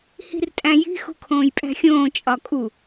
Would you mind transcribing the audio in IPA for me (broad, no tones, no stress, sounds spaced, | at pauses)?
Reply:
h i̤ r tʼ æ̃ j i̤ x ṳ kʰ õː j pʼ æ̤ xʲ õː t͡ʃʼ ɒ kʼ u